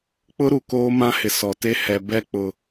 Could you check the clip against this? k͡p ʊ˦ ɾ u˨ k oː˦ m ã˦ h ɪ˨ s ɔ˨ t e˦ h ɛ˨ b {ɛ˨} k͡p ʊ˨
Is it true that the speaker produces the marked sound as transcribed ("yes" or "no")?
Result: no